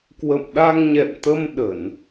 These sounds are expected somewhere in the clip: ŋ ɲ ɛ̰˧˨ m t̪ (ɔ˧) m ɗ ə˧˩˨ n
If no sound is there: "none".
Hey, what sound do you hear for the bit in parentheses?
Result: ə˧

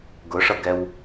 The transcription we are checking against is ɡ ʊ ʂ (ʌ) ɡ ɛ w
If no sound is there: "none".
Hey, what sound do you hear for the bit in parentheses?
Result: ʌ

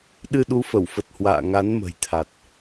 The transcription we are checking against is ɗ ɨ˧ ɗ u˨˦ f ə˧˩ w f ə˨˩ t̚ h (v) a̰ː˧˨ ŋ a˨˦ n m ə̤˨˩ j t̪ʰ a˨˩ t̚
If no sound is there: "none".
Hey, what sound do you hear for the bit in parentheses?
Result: w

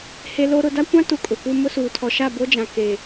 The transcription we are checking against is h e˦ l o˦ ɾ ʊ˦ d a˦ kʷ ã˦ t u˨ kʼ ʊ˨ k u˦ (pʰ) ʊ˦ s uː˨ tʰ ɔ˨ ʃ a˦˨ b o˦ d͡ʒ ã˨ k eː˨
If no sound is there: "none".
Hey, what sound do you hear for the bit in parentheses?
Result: m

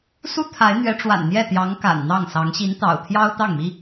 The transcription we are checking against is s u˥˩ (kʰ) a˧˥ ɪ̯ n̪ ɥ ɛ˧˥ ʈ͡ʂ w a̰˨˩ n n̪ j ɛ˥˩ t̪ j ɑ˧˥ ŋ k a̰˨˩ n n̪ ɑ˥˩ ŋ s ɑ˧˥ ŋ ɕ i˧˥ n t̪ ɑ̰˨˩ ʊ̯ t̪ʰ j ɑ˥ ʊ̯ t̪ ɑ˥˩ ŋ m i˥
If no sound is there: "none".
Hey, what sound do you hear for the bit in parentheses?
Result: t̪ʰ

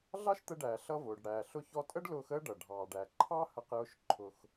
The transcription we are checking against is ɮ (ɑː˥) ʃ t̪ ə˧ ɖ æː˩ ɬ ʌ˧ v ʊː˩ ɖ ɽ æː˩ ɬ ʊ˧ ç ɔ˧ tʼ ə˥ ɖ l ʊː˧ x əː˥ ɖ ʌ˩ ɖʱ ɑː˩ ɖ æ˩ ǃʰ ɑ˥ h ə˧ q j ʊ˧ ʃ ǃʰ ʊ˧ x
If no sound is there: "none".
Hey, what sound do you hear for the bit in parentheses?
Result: ɑ˥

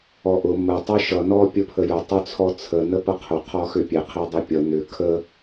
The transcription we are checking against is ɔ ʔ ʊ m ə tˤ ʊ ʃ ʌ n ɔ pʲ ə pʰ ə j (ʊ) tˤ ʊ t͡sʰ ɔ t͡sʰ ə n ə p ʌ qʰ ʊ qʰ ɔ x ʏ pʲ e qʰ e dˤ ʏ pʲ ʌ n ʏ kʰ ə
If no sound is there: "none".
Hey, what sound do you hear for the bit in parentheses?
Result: ʊ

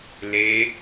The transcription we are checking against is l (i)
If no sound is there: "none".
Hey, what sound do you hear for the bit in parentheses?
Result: e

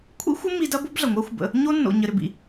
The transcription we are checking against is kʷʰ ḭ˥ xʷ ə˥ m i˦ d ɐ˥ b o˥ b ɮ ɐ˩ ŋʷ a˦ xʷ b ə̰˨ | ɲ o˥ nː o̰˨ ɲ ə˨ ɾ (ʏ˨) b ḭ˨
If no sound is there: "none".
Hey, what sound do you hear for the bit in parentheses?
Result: ʏ˨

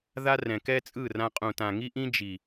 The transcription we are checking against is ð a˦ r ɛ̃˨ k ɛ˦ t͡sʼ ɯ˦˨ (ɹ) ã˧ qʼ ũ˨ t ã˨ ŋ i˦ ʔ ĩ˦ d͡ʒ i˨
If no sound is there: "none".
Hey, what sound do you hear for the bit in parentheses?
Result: r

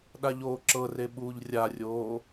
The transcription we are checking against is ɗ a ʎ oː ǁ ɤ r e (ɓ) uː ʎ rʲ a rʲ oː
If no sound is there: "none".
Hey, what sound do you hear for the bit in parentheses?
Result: ɓ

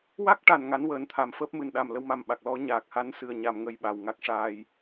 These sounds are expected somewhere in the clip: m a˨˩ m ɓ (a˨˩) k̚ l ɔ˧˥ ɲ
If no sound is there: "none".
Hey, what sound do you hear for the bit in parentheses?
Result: a˨˩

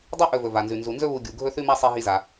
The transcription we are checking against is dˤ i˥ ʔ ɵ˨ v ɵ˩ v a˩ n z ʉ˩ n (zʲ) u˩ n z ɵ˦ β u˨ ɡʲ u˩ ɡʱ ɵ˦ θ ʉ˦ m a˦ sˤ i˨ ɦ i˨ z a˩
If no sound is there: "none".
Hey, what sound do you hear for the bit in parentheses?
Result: z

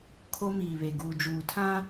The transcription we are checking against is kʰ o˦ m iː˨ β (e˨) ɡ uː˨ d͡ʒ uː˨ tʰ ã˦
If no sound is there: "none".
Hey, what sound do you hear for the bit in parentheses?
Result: e˨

